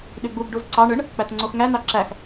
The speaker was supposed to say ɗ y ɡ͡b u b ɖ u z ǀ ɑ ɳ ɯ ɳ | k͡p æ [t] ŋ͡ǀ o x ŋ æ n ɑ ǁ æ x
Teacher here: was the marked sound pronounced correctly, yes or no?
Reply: yes